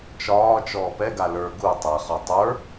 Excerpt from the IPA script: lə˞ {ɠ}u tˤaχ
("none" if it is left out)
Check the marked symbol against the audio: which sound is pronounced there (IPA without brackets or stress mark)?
ɡ